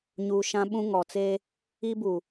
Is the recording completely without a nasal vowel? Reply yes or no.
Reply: no